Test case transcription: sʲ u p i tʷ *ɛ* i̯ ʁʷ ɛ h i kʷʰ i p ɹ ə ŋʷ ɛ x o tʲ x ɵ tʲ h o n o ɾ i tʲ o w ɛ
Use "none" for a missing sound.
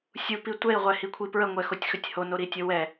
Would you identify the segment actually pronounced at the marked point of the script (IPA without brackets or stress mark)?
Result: ɛ